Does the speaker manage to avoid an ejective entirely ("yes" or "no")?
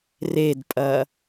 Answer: no